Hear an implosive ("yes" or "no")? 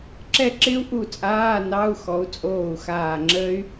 no